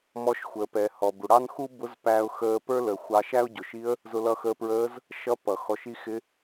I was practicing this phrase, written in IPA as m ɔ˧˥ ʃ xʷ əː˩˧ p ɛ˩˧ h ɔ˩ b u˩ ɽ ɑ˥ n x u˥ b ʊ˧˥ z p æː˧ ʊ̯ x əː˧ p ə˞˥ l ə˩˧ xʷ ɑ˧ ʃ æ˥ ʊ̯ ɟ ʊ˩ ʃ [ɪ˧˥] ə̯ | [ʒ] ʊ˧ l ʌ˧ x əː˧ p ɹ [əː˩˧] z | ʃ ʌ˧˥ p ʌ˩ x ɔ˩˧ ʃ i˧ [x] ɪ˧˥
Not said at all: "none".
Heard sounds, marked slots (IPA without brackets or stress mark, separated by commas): i˧˥, z, əː˧˥, x